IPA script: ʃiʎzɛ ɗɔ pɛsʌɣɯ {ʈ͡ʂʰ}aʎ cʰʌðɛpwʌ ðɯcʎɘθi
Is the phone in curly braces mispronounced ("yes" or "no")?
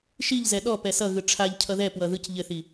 no